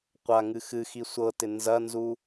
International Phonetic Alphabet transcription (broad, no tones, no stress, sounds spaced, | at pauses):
qʷ a ŋ ɨ x ɨ x i sʷ ɤ t ɪ n z ɐ n z u